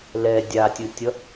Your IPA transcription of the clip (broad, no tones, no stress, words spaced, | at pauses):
lɛ dʲatʲɯtʲʌ